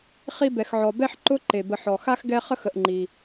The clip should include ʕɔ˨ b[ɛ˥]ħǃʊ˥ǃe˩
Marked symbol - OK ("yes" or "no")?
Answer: yes